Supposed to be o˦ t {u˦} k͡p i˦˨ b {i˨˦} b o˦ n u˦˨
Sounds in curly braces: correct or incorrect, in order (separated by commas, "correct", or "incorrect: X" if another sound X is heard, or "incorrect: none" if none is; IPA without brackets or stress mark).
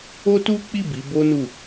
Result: correct, correct